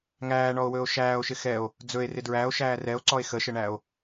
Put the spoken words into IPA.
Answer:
ŋ æː ɳ ɔ o̯ w ɵː o̯ ʃ æː o̯ ʃ ɪ x ɛ o̯ | d͡z ɵ e̯ r ɪ d ɹ æ o̯ ʃ æː r ɛ o̯ ǀ ɔ e̯ x ə ʃ ə ɳ æ o̯

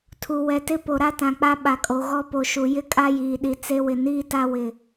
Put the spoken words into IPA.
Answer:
tʰ u˨ w ɛ˨ t ɪ˦ p o˨ ɾ a˦ t ã˨ k͡p a˦ ɓ a˨ kʼ o˨ ɣ ɔ˦ p o˨ ʃ u˨ j ɪ˦ kʼ a˦ j iː˨ ɗ i˨ t͡s e˦ w ɪ˨ n iː˦ t a˦ w ɪ˨

